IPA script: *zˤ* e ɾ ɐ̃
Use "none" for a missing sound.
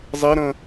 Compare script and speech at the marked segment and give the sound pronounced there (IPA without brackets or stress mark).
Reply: zˤ